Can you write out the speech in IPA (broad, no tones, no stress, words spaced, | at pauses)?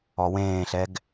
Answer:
ɔwẽːɬɛɡ